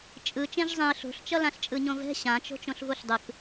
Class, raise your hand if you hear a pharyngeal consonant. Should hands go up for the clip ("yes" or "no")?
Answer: no